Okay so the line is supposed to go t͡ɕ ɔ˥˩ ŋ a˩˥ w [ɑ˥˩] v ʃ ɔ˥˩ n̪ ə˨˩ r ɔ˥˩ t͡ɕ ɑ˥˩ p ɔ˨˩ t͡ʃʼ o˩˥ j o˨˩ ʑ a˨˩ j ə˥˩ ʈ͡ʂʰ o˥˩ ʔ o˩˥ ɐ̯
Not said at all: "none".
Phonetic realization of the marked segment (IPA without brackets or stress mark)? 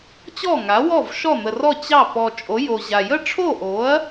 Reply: ɔ˥˩